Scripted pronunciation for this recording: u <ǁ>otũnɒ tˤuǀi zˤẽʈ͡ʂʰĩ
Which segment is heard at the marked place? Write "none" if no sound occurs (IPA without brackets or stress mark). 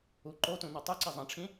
ǃ